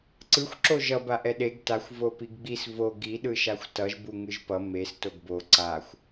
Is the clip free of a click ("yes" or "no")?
no